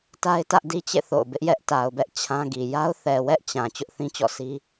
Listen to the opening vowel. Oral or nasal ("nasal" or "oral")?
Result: oral